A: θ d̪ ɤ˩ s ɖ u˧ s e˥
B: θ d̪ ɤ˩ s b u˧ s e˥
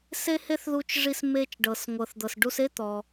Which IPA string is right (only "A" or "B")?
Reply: A